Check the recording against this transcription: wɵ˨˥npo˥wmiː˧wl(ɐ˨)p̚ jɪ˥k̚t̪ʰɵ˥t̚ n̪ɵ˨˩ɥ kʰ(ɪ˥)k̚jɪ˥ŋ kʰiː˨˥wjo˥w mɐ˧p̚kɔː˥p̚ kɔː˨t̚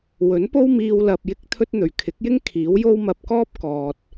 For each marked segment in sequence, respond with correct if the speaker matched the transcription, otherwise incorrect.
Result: correct, incorrect: ɪ˨˥

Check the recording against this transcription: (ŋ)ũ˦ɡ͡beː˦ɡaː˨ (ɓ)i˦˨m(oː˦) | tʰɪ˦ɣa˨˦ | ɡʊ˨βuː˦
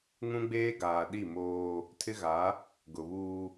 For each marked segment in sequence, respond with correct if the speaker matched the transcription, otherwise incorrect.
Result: correct, incorrect: ɗ, correct

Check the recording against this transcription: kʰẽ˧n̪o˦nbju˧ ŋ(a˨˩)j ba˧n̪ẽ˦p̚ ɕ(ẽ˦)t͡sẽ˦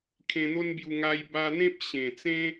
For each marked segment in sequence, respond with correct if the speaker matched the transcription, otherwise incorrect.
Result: incorrect: a˧, incorrect: ẽ˨˩

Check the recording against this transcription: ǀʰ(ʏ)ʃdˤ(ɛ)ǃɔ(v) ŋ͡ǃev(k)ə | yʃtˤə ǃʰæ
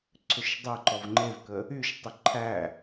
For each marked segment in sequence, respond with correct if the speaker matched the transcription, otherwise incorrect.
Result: correct, correct, correct, correct

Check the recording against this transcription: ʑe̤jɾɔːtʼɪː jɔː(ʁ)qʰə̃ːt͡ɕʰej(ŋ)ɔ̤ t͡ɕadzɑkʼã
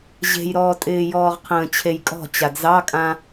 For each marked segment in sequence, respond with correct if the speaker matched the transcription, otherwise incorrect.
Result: correct, incorrect: kʼ

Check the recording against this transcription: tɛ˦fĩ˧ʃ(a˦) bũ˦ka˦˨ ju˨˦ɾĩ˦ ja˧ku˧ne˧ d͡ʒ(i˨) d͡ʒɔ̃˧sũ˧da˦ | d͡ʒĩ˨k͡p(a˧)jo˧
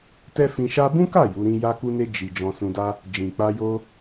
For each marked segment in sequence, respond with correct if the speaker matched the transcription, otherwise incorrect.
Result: correct, correct, correct

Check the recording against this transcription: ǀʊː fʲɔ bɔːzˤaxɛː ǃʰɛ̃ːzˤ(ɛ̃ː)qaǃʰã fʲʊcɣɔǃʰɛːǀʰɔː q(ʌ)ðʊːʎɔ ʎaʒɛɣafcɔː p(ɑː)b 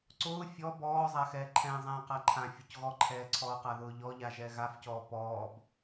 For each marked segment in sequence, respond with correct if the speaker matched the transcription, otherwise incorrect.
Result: correct, incorrect: a, incorrect: ɔː

